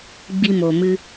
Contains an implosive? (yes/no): no